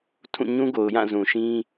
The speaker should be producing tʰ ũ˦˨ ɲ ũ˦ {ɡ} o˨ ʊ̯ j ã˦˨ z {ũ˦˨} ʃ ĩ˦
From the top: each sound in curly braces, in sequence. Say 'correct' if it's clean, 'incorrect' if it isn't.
correct, incorrect

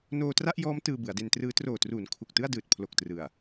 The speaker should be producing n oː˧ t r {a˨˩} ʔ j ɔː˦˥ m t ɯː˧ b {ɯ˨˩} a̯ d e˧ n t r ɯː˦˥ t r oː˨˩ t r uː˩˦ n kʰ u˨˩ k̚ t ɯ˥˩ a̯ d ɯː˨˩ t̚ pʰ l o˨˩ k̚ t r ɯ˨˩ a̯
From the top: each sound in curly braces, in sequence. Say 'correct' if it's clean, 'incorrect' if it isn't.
incorrect, incorrect

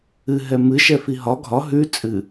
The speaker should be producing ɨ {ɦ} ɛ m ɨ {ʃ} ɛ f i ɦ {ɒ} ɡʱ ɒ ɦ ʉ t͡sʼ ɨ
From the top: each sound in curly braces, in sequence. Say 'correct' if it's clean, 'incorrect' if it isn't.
correct, correct, correct

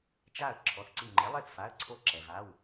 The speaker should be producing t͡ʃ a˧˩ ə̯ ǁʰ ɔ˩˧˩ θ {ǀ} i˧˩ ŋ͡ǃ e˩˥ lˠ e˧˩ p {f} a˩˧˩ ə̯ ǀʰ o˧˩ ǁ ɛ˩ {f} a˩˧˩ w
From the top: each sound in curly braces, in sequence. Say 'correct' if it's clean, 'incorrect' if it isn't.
correct, correct, incorrect

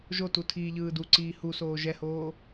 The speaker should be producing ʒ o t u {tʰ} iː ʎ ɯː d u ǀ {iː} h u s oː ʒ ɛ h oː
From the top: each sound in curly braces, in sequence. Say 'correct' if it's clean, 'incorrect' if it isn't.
correct, correct

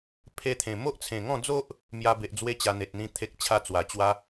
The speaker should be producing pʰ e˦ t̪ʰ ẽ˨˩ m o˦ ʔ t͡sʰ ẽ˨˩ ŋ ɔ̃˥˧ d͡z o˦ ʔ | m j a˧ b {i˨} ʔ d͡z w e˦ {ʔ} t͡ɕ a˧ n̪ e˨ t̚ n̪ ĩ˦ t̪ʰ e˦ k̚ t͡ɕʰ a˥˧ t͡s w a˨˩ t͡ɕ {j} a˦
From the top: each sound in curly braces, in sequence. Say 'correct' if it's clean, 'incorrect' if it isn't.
incorrect, incorrect, incorrect

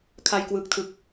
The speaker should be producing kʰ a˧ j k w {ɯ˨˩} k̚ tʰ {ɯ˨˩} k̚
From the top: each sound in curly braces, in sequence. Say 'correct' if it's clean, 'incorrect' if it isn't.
correct, correct

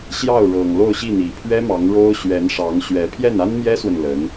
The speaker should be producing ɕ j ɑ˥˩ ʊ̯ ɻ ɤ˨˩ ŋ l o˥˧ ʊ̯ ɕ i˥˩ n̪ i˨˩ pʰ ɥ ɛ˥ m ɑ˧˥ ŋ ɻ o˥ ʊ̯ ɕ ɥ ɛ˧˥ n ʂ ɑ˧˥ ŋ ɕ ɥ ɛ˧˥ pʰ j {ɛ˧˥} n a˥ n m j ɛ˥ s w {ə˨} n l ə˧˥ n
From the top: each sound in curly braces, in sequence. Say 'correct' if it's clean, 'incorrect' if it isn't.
incorrect, correct

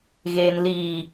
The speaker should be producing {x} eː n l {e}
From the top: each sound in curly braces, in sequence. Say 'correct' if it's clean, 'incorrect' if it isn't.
incorrect, incorrect

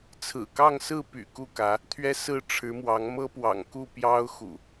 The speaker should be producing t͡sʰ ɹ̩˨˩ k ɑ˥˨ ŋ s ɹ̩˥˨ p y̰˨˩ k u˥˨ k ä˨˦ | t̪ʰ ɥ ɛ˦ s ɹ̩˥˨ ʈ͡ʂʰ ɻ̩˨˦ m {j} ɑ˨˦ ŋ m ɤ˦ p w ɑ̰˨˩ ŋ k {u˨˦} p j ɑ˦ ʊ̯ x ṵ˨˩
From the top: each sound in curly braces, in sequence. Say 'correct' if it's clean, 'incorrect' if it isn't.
incorrect, incorrect

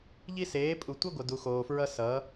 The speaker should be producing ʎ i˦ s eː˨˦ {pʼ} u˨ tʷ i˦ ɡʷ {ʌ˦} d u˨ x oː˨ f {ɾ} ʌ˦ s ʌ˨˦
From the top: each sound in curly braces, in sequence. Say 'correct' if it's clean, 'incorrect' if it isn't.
correct, incorrect, incorrect

